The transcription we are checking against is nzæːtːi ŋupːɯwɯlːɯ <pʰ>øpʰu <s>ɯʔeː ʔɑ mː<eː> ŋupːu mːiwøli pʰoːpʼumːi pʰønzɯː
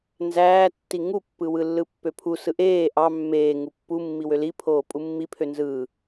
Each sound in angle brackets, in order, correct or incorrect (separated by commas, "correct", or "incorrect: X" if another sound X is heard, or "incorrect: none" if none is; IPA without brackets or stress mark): incorrect: pː, correct, correct